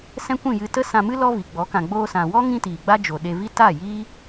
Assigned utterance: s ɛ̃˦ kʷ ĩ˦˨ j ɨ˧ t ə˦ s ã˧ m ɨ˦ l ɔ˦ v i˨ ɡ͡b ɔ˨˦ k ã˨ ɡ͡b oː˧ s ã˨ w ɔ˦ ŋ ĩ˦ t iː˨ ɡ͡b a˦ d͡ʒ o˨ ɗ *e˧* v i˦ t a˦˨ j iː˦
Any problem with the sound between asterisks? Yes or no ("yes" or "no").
no